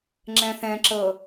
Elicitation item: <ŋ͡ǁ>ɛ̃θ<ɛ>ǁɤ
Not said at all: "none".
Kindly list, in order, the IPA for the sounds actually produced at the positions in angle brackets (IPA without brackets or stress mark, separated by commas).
ŋ͡ǁ, ɛ̃